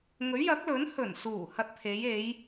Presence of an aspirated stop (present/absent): present